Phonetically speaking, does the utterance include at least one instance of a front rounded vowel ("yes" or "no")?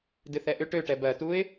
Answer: yes